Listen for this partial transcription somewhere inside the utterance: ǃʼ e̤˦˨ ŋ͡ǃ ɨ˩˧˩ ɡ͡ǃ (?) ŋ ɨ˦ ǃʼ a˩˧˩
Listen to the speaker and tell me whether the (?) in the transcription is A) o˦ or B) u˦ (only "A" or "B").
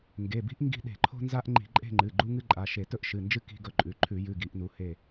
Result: B